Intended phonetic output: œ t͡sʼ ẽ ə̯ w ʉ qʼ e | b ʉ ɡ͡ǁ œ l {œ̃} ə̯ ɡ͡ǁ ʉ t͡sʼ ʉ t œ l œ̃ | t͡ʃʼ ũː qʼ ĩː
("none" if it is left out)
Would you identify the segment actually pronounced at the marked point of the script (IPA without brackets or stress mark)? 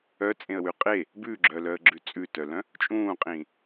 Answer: œ